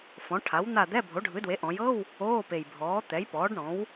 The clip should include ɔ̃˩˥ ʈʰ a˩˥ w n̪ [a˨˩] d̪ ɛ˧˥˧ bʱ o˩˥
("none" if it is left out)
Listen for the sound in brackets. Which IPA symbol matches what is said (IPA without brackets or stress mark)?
a˦˨